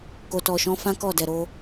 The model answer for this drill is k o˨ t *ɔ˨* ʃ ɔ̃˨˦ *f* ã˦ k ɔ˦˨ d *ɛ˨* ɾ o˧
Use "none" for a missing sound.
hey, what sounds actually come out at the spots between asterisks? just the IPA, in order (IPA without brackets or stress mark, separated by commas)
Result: ɔ˨, f, ɛ˨